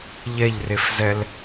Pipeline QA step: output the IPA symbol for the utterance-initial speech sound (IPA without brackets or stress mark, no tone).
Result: ʎ